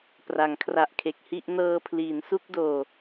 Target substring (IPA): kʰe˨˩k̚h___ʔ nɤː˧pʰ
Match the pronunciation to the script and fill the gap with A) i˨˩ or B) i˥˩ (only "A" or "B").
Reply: B